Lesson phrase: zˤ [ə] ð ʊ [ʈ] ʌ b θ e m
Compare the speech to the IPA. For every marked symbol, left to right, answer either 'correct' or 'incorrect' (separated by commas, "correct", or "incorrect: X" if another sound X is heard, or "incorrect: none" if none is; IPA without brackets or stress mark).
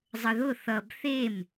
correct, incorrect: θ